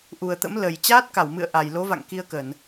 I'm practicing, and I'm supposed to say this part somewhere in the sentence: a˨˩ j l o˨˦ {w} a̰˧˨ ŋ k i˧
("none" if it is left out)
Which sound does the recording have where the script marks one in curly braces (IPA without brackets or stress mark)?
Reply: v